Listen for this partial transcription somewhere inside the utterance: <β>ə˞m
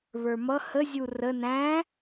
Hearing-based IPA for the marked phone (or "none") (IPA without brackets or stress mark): β